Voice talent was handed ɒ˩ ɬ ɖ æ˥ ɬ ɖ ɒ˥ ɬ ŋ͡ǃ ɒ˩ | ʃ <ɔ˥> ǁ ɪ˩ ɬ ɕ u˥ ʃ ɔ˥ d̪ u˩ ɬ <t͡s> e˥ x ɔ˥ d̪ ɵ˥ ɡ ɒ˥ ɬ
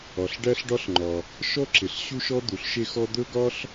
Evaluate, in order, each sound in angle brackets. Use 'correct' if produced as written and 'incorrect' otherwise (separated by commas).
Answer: correct, incorrect